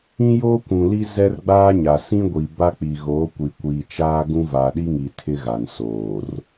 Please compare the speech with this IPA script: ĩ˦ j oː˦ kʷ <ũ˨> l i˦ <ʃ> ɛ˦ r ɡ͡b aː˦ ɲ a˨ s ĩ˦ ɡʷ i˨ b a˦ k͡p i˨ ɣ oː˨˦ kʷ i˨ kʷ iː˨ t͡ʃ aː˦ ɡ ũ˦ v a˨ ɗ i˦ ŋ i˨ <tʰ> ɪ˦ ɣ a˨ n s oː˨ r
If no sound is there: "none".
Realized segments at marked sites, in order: ũ˨, z, tʰ

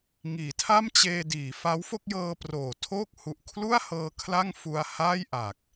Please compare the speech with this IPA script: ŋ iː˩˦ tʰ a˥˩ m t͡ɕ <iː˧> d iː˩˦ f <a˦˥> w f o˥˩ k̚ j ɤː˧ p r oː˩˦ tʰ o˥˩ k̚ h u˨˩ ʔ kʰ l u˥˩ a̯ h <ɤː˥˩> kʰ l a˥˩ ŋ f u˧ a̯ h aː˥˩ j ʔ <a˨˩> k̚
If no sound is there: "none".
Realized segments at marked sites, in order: eː˧, a˦˥, ɤː˧, a˨˩

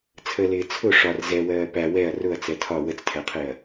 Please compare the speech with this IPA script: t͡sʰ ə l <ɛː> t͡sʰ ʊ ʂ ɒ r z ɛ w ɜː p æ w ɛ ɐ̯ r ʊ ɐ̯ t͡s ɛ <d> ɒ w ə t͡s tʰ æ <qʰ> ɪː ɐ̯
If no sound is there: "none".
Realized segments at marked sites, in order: ɪː, tʰ, qʰ

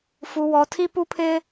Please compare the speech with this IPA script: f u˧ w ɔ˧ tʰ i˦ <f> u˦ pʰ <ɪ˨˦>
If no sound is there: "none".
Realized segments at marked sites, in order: p, ɪ˦

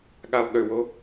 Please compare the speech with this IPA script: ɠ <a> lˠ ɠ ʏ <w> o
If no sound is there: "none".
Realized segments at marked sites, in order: a, w

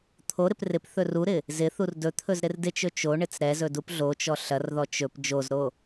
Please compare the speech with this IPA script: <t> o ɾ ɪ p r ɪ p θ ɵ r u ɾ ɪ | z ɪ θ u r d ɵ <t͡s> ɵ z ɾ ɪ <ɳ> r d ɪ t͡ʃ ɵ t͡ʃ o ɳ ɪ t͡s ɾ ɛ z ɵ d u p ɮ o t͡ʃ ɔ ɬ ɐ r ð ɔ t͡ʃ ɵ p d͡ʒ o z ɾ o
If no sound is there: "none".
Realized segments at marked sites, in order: t̪ʰ, t̪ʰ, none

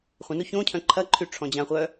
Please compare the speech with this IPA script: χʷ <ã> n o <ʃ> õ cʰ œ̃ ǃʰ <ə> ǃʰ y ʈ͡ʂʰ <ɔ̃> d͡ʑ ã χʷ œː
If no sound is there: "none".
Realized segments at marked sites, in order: ə̃, ç, ɐ, ɔ̃

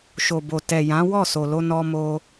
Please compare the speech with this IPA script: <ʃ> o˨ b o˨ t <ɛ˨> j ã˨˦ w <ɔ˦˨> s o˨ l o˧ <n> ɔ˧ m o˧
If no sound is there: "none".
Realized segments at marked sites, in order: ʃ, ɛ˨, ɔ˦˨, n

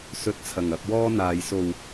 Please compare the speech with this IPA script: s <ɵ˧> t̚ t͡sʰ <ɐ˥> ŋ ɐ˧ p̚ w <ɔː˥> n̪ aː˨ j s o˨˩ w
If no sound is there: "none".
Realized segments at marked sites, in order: ɵ˧, ɐ˨˩, ɔː˥

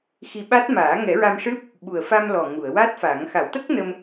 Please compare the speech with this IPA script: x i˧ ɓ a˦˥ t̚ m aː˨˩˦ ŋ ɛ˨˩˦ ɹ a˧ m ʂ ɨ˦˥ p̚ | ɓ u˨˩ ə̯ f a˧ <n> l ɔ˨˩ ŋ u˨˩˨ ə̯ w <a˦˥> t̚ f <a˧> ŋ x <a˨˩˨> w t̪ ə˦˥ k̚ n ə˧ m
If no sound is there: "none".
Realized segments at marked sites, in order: m, a˦˥, a˨˩˦, a˨˩˦

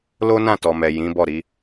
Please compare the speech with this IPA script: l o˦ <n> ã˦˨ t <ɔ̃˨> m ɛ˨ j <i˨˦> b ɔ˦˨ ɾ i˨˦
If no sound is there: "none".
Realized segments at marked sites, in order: n, ɔ˨, ĩ˨˦

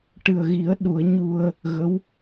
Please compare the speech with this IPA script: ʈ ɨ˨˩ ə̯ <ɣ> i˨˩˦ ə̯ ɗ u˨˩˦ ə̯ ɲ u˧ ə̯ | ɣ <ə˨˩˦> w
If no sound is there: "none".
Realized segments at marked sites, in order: ɣ, ə˧˥

